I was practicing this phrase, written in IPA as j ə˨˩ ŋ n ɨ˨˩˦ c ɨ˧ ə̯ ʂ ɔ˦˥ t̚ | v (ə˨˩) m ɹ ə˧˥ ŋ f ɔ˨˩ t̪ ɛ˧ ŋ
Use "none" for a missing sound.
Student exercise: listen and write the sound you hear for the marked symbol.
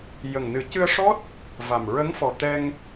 a˨˩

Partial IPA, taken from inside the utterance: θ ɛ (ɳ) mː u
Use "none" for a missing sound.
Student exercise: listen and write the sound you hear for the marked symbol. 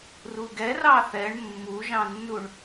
ɳ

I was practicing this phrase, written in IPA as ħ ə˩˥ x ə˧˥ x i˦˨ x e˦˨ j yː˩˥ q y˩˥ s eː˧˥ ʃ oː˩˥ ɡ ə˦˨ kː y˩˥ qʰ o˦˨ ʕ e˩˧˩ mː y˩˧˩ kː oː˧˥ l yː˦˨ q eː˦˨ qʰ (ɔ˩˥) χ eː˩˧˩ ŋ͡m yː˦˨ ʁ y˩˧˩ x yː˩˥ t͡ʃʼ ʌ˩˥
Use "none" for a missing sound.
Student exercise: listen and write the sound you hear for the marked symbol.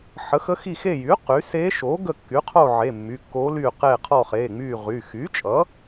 ɔ˦˨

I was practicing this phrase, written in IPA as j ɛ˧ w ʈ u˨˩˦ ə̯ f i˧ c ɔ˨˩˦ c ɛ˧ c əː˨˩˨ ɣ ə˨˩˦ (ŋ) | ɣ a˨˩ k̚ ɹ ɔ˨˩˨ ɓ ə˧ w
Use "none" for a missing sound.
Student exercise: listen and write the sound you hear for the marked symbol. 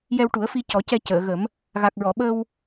m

